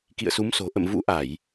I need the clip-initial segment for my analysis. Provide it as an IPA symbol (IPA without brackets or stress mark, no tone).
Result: k